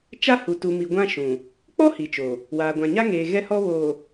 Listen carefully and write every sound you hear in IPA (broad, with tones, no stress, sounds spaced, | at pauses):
t͡ʃ a˦ h u˨ t u˨ m i˨ ɡʷ ã˦ ʃ ũ˨ | k͡p ɔ˦ h i˨ t͡ʃ o˨ | w aː˨ ɡʷ ã˨ ɲ a˦ ŋ eː˨ ɣ ɛ˦ h ɔ˦ β o˨